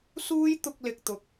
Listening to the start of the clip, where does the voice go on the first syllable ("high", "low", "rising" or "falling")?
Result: high